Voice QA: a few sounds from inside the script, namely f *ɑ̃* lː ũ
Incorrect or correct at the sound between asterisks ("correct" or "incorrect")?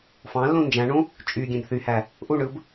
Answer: correct